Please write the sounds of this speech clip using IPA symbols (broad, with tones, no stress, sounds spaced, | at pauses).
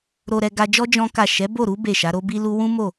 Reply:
ɾ o˧ ɾ ɛ˧ ɡ a˧ d͡ʒ ɔ˦ d͡ʒ ɔ̃˦ k a˦˨ ʃ ɛ˨˦ b o˦˨ ɾ u˨˦ b e˦˨ ʃ a˨˦ ɾ o˦ b i˦ l u˦ w ũ˦ m o˦˨